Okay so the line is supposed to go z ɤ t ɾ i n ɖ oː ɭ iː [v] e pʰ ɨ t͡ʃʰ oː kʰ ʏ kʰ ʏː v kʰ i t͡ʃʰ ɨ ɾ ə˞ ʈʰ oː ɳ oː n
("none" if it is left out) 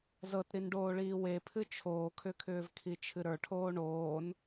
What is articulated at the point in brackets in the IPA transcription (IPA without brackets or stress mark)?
w